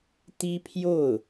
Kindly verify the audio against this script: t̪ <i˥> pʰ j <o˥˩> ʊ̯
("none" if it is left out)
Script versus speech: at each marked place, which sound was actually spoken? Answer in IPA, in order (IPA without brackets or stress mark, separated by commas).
i˥, o˥˩